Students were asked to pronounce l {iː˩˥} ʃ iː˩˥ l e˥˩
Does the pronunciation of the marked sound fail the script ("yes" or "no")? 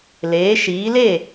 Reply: yes